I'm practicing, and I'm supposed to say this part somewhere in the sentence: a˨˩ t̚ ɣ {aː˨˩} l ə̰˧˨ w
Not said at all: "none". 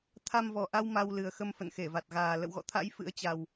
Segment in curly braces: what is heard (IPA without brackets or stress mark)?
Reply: aː˨˩